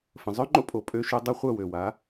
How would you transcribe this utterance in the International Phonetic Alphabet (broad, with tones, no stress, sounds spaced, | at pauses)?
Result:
f ə̃˩ zˤ œ˥ ŋ͡ǃ o̰˥ pʼ o˩ pʼ ø˧ ʃ ø˧ dˤ a˥ χʷ œ˥˩ w ø˩ w a˩˥